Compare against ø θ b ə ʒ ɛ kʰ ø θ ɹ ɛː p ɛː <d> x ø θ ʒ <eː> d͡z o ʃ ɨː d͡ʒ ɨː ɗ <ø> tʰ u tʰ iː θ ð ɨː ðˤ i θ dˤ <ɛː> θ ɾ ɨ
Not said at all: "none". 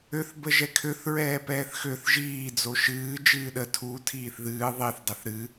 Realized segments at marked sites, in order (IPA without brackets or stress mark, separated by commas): θ, iː, ə, ɛ